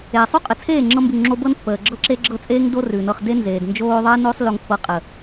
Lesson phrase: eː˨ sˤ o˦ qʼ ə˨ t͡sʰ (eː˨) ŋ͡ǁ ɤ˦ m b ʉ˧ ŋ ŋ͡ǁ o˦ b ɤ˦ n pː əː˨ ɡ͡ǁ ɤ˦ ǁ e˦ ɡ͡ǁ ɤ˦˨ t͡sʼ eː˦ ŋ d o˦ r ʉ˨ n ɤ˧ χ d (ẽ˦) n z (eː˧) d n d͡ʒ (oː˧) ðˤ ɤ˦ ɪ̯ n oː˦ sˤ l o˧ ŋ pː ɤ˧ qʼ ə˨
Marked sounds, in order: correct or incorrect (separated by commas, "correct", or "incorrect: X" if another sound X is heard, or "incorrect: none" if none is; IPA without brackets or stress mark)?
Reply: incorrect: eː˦˨, incorrect: e˦, incorrect: eː˨, correct